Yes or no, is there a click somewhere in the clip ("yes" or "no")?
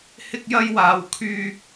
no